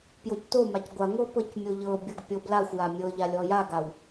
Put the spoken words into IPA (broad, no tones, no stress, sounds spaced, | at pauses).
p j o c t o m a c ɡʷ a ŋʷ ɤ p ɤ c mʲ o ʎ ɤ bʲ ɤ ɡ pʲ ɤ b l a xʷ j a mʲ ɤ ʎ a lʲ ɔ j a ɡ a w